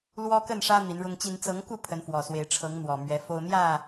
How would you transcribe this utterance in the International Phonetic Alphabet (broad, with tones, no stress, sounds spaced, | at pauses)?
l w ɔ˦ k ə˥˨ n ʂ ä˦ n̪ i˨˦ n ɻ ʊ˦ ŋ t͡ɕ i˦ n t͡s ɤ˨˦ ŋ k u˥˨ pʰ ə˨˦ n f w ɔ˨˩ s w e˨˦ ɪ̯ ʈ͡ʂʰ ɤ˨˦ ŋ n̪ w ɔ˨˩ m ɥ ɛ˨˦ f o˦ ʊ̯ n̪ j ä˥˨